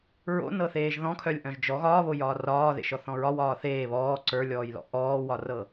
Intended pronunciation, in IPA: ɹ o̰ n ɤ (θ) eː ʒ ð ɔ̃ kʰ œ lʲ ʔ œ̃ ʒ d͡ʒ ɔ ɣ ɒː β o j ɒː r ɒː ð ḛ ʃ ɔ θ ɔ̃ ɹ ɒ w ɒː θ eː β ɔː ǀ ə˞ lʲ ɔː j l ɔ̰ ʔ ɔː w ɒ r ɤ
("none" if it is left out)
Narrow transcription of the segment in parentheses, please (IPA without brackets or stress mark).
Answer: θ